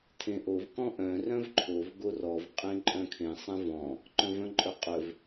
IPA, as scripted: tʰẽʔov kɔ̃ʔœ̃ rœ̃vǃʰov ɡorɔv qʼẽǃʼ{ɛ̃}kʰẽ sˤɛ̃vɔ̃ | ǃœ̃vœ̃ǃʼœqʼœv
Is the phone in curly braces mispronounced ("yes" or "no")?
yes